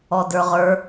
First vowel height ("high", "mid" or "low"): mid